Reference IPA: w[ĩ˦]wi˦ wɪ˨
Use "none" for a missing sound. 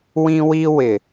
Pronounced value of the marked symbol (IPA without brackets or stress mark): ĩ˦